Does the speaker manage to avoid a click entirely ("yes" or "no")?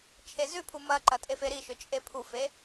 no